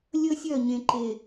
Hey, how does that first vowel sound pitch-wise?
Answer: high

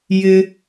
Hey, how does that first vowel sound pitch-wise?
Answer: low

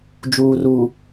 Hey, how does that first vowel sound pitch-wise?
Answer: low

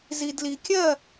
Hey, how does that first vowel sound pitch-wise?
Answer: low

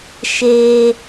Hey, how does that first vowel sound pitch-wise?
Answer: high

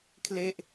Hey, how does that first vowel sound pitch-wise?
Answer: falling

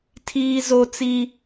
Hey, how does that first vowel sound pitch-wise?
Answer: high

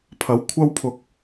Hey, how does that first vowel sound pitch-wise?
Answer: rising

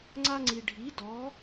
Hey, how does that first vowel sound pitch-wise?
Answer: high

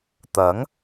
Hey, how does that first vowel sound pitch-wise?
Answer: rising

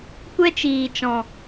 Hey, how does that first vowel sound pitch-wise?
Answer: high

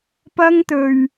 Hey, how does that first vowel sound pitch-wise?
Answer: high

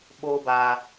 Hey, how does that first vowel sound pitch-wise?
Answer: high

